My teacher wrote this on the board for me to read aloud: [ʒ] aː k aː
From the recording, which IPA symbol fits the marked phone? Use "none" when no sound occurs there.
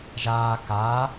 ʒ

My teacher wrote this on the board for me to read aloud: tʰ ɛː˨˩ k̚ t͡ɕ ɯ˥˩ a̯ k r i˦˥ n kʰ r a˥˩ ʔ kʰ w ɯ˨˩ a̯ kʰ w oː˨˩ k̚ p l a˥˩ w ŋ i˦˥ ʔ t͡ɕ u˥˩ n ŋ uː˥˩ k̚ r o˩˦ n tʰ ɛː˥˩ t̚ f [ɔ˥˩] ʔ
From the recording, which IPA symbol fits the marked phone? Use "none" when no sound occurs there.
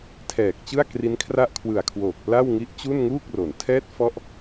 ɔ˥˩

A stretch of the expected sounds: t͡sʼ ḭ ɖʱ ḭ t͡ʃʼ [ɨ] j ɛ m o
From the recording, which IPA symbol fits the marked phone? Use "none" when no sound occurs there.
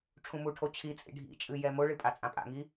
ɨ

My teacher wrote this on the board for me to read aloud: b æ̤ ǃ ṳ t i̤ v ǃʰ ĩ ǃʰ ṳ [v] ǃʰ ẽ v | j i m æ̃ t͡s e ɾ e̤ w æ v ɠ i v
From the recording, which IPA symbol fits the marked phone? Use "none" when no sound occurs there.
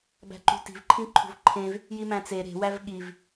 v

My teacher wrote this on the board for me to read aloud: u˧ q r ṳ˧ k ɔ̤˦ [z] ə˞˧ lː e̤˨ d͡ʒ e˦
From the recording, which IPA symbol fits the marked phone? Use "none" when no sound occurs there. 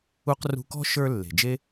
ʃ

